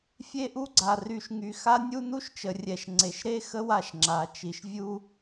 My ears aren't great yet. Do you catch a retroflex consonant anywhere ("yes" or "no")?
no